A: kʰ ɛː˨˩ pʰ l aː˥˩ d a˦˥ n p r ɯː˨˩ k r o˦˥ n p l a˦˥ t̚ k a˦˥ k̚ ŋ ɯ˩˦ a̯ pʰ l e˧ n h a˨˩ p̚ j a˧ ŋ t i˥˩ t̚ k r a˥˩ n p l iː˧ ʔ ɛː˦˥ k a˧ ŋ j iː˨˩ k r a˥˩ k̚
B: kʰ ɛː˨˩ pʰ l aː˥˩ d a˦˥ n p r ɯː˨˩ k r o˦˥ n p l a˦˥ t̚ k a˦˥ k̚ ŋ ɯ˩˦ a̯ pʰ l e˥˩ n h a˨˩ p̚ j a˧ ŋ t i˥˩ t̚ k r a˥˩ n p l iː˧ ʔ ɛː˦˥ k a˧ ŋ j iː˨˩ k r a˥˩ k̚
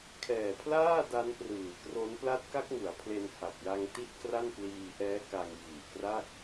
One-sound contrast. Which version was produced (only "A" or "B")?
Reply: A